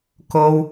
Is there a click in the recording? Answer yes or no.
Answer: no